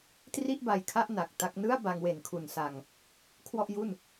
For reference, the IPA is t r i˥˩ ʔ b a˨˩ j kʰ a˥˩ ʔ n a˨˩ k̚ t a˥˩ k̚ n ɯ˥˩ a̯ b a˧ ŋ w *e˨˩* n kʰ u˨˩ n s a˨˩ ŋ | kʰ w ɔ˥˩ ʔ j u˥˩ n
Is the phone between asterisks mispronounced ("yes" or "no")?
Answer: no